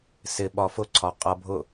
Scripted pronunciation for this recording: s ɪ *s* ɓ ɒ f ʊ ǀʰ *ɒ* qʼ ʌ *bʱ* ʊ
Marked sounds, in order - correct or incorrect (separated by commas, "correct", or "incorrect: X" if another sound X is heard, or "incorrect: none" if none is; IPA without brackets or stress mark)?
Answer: incorrect: none, correct, correct